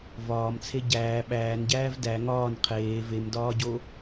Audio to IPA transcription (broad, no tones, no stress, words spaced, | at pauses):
vɒːmt͡sʰe ɟæː ɓæːnɟæːv dæ ŋɒːn qʰeː vemdɒːɟo